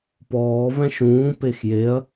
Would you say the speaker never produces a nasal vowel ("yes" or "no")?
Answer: no